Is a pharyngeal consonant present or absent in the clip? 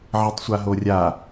present